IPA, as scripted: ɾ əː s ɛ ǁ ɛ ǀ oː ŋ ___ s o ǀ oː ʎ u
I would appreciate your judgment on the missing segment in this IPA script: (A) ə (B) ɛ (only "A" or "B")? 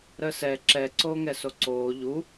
B